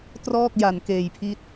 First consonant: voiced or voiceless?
voiceless